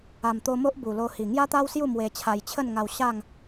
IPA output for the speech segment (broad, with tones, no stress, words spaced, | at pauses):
a˨˩mt̪o˧mo˦ʔ bu˨˩lo˧hi˨˩ ŋja˦t̪a˦wsju˥˧ mwe˧t͡ɕʰa˧j t͡ɕʰə˥˧nŋa˧w ɕa˥˧ŋ